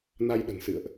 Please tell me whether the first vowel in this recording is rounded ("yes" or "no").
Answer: no